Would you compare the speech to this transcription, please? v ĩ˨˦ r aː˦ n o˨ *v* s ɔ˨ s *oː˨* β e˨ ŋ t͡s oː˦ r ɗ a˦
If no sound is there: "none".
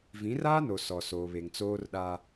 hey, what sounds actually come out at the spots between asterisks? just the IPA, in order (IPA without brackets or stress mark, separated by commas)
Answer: none, oː˨